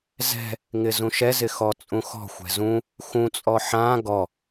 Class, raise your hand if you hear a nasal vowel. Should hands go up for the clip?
yes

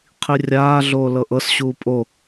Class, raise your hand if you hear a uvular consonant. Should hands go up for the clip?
yes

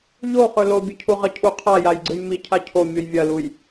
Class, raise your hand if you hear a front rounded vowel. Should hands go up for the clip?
no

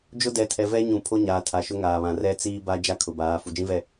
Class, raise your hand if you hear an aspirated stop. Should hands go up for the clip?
yes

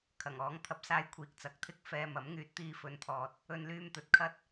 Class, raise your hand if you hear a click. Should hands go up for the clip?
no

